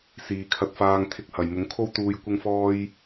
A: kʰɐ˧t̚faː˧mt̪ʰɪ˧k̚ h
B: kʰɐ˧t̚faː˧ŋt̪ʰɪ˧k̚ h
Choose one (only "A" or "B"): B